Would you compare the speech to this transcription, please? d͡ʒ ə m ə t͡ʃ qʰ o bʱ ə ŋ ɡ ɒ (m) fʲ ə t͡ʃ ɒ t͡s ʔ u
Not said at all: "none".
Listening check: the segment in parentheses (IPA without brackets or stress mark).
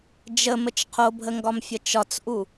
m